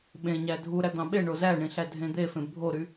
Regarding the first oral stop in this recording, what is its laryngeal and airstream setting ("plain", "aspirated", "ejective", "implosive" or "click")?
implosive